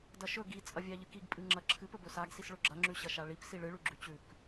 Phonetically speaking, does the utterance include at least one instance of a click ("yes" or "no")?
yes